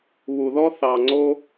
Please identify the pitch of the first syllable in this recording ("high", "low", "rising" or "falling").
low